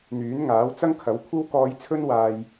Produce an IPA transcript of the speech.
n̪ yː˨˥ n ŋ aː˨˥ w t͡s ɐ˥ ŋ kʰ ɐ˨˥ w kʷʰ ɐ˥ w k ɔː˧ j t͡sʰ ɵ˥ n w aː˧ j

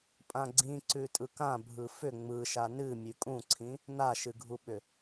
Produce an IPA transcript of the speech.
pʼ ã ɡ͡ǀ ĩ ǀ ʉ tʼ ɯ k ã bʱ ɯ f ʏ ŋ͡m ɯ ʃ a n ɨ mʲ ʉ kʼ ũ ǀʰ ĩ | n a ʃ ɨ ɡʱ u ɓ ʏ

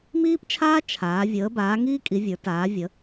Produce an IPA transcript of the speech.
m iː˥ p t͡ʃʰ aː˥ t͡ʃʰ aː˨˦ vʲ əː˨˦ b aː˨˦ ŋ iː˥ kʼ i˨˦ vʲ ə˞˨˦ t aː˨˦ vʲ ə˨˦

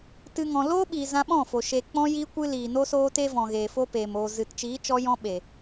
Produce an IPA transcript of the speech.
t ɨ˦ ŋ ɔ̃˧ l oː˦ ɓ iː˨ z ã˧ ɓ ɔ̃˦˨ f o˨ ʃ e˨ k͡p ɔ̃˧ j iː˧ kʷ ɨ˦ l iː˨ n o˦ s oː˦ t e˦ v ɔ̃˨ ɣ eː˨ f o˦ p eː˨ m o˨ z ɨ˨ t t͡ʃ iː˨˦ t͡ʃ ɔ˧ j ɔ̃˧ ɓ e˨

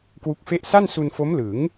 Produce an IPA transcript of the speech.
k w u˦˥ k̚ f e˥˩ ʔ s a˥˩ n s u˧ n f o˦˥ m l ɯ˩˦ ŋ

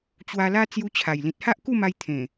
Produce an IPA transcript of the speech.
t͡ɕ w a˧ l a˦ t͡s j u˧ t͡ɕʰ a˨˩ j l ĩ˨ t̚ h a˦ ʔ k u˥˧ m a˧ j t̪ʰ ẽ˨˩

